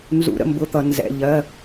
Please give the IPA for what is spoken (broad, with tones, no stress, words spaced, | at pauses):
nzṵ˩˧˩ɾə̰˩˧˩ mbʊ˩˧˩t̪ʌ˩ nzɛ̰˩˧˩ ʎɜ˩˧˩